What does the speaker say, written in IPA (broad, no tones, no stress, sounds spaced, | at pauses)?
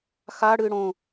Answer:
x a ɽ ɨː ɽ õ